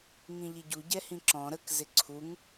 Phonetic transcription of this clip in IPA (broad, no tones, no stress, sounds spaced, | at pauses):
ŋ ĩ ʎ i ɟ u ɟ ɛ h ĩ ǁ ɔ̃ ɾ ə k z ɪ ǀʰ u ŋ